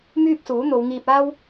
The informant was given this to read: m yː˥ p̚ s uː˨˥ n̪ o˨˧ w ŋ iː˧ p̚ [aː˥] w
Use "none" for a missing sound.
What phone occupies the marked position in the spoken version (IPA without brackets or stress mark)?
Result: aː˥